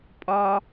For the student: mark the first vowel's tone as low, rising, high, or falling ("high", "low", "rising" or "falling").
high